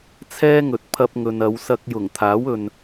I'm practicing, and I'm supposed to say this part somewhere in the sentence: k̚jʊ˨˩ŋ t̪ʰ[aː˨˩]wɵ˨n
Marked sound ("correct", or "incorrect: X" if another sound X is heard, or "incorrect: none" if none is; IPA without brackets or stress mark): incorrect: aː˨˥